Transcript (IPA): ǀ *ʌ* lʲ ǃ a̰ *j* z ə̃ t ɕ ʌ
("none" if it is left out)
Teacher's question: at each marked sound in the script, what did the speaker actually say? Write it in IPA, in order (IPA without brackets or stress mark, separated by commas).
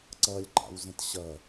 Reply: ʌ, w